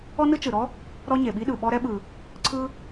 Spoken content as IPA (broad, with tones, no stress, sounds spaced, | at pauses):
ɔ˥ n ɯ˥ t͡ʃ ɯ˩ ɾ ɔ˥ | ɾ ɔ˥ ɲ e˩ ɓ i˥ ɗ ɯ˩ ɓ ɔ˥ ɾ ɛ˥ ɓ ɯ˩ | ǀʰ ɯ˥